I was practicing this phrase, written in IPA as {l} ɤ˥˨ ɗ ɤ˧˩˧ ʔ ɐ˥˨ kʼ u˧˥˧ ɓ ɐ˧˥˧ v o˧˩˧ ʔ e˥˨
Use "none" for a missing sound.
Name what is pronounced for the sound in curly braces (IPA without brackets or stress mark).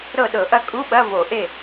ɾ